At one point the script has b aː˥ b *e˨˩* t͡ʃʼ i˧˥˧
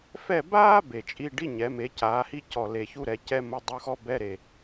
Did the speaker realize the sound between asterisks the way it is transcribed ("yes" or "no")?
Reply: yes